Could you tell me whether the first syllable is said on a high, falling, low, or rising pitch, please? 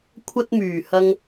high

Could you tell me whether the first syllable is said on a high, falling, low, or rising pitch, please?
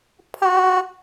high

